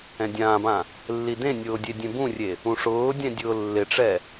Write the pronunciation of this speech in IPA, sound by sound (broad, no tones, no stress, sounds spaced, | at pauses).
ɛ̃ dʲ ãː b ã | lː i d ẽ nʲ ʊː dʲ e dʲ ẽ b ũ rʲ e | ũ ʂ ʊː dʲ ɛ̃ dʲ ʊː lː ɪ ʈ͡ʂ ɛ